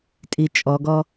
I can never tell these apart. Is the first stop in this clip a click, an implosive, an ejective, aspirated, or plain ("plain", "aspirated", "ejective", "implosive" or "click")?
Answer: ejective